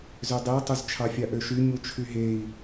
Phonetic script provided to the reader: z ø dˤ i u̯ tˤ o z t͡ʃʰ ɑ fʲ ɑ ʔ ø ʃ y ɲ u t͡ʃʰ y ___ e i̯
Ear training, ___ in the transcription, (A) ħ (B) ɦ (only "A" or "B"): B